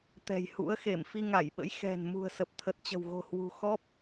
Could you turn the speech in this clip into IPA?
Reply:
t̪ɛ̤˨˩jhṵ˧˥ə̯xe˧˩m fi˧ŋa˧˩jɓə̰˧˥j xɛ̤˨˩n mṳ˨˩ə̯sə˨˩p̚t̪ʰə˨˩t̚t͡ɕə̤˨˩w ɣo̤˨˩hwṳ˨˩xɔ˦˥p̚

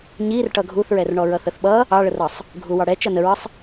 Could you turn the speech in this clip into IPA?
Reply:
ɲir ʈʌɡʱuθɹɛrɳɔ ɹʌθəθɓʌ | ɑɭərʌsˤ | ɡʱuwɑɽɛ t͡ʃʌnəɹəsˤ

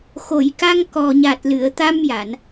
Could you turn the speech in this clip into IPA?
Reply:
xo˨˩˨jka˧ŋkɔ˨˩ ɲa˨˩t̚lɨ˨˩˨ə̯t̪a˧m ja˨˩˨n

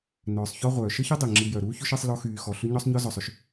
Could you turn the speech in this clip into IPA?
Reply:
nœː˩sˤçɔ˦ʁʷœː˩ ʃə˥çi˥dˤi˩ ŋ͡ǁi˨jœ˩ɾuː˥çʏ˥ʃ i˦sˤlɔ˦xyː˨ xɔ˩ɬʏ˥ ɲɔ˥sˤɲɔ˥ zɔ˨sˤʏ˥ʃ

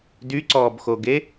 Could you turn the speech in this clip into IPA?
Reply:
dyǀɔːbxoɡe

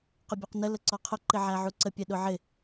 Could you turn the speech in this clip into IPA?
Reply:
qʊbʲɔqnə ləǀɔqʰʊ ǃɪʕæʕuǀə pʲɛɗʊʕɪ

